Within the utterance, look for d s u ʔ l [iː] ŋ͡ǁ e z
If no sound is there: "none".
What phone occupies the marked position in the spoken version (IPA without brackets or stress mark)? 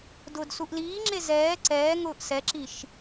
iː